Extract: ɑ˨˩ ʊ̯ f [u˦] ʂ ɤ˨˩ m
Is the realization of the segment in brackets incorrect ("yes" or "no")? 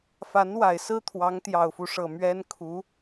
no